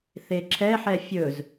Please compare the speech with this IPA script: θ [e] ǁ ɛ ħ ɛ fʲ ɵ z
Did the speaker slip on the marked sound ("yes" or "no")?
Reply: no